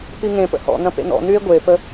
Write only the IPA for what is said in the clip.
p i ŋ ẽ p ə̰ h ɔ̰ n̪ ɐ̃ p ḛ n̪ ɔ̰ n̪ y e̯ ɡʷ e p ə

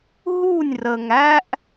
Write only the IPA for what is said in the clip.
ɦ u˦˨ nʲ r ə˨ ŋ æ˦ ʔ

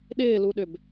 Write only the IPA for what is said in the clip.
ɗ ɪː l u ɗ ʏ b

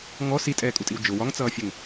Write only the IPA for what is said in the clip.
ŋ ɔ s i tʼ ɛː kʼ u tʼ i w d͡ʒ ʊ w ɒ ŋ t͡s ʌː fʲ ɛ ŋ

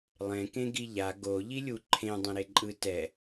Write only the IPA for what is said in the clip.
lˠ ẽ k ẽ ɡ i ʎ a ɡ o ʎ i lʲ u ǃʰ ẽ dˤ ɛ̃ ɾ e ǃʼ ɯ t ɛ

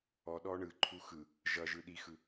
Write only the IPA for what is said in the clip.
ɔ ɗ ɔ ɳ ɯ ǃʰ u x ɯ | ʒ ʌ ʒ ɯ ɗ i x ɯ

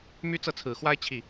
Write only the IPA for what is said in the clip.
m y˥ t͡s ɤ˥˩ t͡sʰ ɹ̩˨˩ x w a˥ ɪ̯ t͡ɕʰ i˥˩

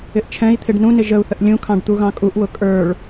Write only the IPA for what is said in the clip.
ɪ ʔ t͡ʃʰ ɛ̃ i̯ t̪ʰ ɪ ɖ n ũ n ɪ ʒ ə u̯ θ ə ʔ lʲ ũ kʰ ɑ̃ ɖ t̪ u ɣ ɑ̃ kʼ u ʔ w ʊ kʼ ə˞ ɭ

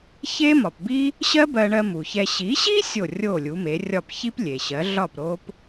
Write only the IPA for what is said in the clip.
ç e˥ m ɒ˩ p b i˥ | ɕ ɜ˥ b ɜ˧ ɳ ɜ˧ m u˩ ç ɛ˧ ɕ i˩˥ ɕ i˥ sʲ o˥˩ rʲ o˥˩ lʲ u˩˥ m e˩˥ rʲ ɒ˥˩ p ç i˥ p lʲ e˩ ɕ ɜ˩˥ ɮ ɒ˥˩ p ɾ o˥ p

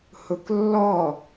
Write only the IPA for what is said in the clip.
h ʊ k lː ɔ

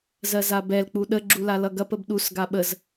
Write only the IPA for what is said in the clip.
z ɜ z a b ɛ l k͡p u ɗ ə ɡ͡ǁ u l a l ʌ ɡ ɐ p ə b ɗ u s ɡ a ɓ ə z

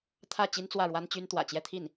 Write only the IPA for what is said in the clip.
t̪ʰ ä˥˩ t͡ɕ i˥ n t͡s w ä˥˩ ɻ w a˥ n t͡ɕ y˥ n t̪ w ä̰˨˩ t͡ɕ j ɛ˥˧ t̪ʰ i˥˩ n

